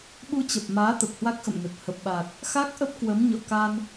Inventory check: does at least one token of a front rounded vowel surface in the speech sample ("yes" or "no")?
no